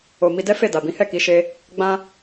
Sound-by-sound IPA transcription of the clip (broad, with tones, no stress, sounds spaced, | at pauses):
o˨ m i˧ d ɛ˦ f e˦˨ d a˨ b ĩ˨˦ h ɛ˦˨ k i˧ ʃ e˧ | ɡ͡b ã˧